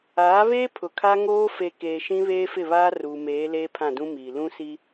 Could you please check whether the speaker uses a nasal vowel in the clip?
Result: yes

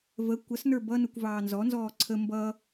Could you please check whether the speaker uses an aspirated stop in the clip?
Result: yes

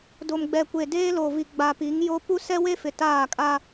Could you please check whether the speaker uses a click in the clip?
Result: no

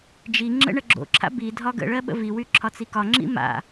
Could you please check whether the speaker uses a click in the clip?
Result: yes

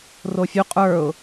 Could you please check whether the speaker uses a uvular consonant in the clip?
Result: yes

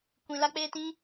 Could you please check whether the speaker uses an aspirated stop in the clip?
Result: no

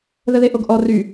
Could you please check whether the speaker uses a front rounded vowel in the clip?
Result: yes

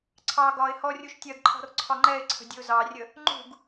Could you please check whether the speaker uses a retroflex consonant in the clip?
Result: no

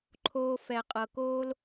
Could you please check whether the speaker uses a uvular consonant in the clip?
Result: yes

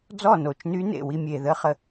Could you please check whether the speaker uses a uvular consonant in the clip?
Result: yes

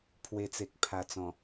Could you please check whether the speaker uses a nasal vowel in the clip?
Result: yes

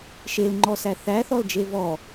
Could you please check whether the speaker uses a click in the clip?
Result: yes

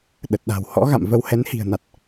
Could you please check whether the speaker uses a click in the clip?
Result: no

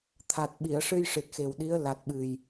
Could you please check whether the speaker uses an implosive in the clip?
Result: yes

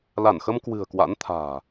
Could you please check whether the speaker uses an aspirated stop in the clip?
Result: yes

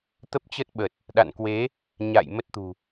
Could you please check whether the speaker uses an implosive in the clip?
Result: yes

